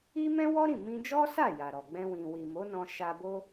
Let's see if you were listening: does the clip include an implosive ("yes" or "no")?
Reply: no